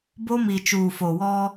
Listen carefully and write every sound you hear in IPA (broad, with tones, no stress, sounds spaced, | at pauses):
b o˦ m i˨ t͡ʃ uː˨ f o˨ w ɔ˦